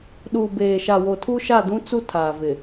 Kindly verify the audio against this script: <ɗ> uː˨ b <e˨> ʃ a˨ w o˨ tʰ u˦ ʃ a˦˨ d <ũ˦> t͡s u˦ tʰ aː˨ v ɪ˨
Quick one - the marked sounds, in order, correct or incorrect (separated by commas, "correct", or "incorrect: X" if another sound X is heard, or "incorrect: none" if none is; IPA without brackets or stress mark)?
correct, incorrect: eː˨, correct